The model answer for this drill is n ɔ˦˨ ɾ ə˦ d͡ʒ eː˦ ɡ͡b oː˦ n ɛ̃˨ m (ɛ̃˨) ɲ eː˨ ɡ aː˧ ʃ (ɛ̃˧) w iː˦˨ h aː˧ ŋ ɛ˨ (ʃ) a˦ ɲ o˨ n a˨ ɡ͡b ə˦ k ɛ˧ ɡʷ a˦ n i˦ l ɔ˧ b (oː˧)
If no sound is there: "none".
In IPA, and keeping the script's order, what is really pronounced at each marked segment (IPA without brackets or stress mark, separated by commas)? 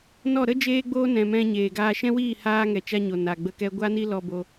ɛ̃˧, ɛ̃˦, t͡ʃ, o˧